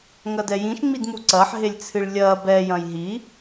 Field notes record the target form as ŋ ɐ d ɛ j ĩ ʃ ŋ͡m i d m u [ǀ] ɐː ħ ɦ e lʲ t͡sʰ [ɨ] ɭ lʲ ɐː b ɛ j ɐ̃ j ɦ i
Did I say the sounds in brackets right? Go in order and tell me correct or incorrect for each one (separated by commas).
correct, correct